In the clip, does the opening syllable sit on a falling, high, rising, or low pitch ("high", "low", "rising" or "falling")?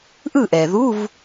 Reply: falling